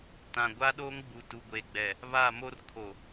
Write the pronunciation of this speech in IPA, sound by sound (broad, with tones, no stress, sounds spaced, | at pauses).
t ã˨ ɡʷ a˦ ɗ oː˦ ŋ ɡ͡b u˨ t u˨ ɡʷ eː˨ ɡ͡b ɛ˨ | β a˦˨ m o˦ r kʰ o˨